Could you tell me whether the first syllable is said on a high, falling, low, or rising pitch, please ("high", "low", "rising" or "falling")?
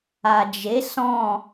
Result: low